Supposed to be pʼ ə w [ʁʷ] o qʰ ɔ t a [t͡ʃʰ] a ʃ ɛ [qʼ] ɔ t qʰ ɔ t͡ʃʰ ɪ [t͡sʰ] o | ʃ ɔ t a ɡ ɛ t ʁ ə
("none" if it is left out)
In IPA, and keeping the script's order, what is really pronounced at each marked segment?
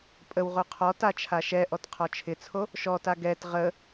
ʁ, t͡ʃʰ, ʔ, t͡sʰ

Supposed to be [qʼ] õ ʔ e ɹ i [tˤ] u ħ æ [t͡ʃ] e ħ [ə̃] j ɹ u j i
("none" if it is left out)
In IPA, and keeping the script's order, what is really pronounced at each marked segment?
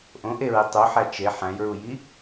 ʔ, tˤ, t͡ʃ, æ̃

